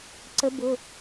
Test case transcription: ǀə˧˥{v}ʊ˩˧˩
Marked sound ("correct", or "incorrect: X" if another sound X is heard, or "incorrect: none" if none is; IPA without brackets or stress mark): incorrect: b